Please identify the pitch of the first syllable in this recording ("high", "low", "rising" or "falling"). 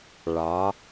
rising